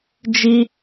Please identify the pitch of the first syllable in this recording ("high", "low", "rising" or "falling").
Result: high